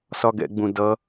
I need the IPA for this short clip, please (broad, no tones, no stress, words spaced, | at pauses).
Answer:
sɒɡɛ̰ɡ͡bũ dʌ